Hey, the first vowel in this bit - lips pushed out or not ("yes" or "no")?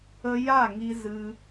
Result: no